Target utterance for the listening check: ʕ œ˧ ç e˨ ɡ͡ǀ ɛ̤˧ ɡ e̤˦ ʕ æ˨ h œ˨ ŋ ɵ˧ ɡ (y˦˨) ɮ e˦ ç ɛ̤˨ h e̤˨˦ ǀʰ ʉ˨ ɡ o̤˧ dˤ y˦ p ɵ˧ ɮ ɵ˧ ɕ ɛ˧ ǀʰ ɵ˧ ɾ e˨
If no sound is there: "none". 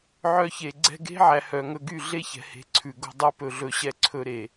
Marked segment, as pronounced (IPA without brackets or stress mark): y˦˨